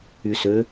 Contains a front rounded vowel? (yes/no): yes